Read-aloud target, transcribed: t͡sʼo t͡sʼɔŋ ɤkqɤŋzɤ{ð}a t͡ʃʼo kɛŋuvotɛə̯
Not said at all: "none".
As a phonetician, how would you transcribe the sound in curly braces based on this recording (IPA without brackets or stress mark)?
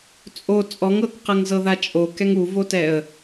ð